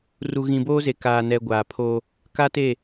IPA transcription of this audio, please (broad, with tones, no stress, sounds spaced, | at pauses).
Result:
r u˨ ɣ ĩ˨ b oː˦ z e˨ k aː˨ n ɛ˨ ɡʷ aː˨ pʰ oː˦ | k a˦ t e˦˨